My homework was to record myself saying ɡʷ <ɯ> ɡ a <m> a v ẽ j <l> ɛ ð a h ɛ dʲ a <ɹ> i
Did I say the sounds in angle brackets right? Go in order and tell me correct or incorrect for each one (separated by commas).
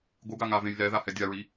correct, incorrect, correct, correct